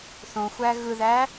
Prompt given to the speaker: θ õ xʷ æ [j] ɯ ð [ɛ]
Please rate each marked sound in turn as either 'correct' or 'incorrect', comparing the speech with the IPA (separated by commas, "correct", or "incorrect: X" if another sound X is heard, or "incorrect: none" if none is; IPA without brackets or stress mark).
incorrect: ɣ, incorrect: æ